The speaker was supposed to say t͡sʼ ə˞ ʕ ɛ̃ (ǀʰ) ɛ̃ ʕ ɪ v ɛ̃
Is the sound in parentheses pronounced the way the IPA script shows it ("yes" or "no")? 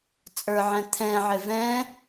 no